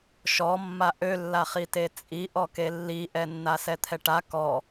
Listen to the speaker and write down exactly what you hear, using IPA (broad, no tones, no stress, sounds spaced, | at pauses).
ʃ ɔ mː a ʔ ø lː a χ i t e t͡sʼ i ʔ ɔ k e lː i ʔ ɛ nː a s ɛ t̪ʰ ɛ ʈ a k ɔ